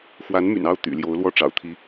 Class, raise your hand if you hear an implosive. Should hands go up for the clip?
no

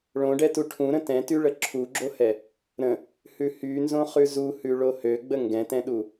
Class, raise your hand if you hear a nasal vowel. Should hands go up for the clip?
yes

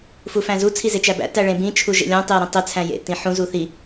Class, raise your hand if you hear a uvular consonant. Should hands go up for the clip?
no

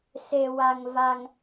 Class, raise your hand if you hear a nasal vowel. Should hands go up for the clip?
no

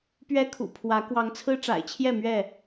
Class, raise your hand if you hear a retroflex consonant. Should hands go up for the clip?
yes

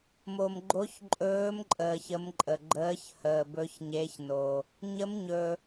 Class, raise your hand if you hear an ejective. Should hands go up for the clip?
yes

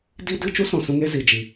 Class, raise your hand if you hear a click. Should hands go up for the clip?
no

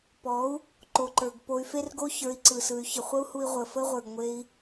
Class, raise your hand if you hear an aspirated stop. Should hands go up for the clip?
no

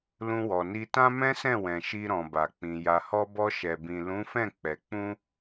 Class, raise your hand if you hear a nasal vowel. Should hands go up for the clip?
yes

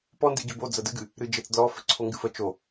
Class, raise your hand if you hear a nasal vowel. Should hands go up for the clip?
no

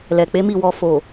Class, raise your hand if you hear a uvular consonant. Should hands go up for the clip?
no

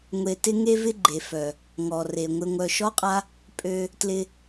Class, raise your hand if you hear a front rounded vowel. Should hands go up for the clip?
yes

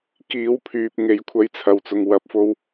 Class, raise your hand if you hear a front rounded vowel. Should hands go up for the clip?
yes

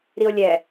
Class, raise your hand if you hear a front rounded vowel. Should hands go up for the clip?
no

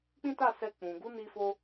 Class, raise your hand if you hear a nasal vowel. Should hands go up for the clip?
yes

